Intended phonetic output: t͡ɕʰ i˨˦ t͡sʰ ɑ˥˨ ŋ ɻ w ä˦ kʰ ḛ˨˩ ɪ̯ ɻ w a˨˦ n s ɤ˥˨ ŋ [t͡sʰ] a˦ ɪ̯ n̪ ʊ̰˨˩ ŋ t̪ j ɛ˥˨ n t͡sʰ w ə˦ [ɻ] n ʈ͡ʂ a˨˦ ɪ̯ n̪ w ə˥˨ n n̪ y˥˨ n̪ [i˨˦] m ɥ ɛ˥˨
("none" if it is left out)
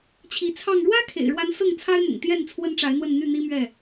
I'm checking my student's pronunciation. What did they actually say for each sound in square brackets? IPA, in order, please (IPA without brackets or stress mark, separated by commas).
t͡sʰ, none, i˦